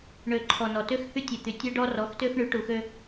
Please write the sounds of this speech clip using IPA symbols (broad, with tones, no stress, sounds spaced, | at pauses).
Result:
ɳ ø˨ ǃʰ ɔ˨ n ɔ˨ t ø˦ x h y˦ tʲ e˨ t̪ y˨ tʲ ø˦ ɖ ɔ˦ r ɔ˨˦ x t ø˦ x ɳ y˨˦ ʈ u˨ x ø˦